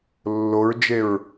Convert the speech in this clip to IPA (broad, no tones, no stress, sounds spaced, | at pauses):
lː o ɹ d͡ʒ e ɹ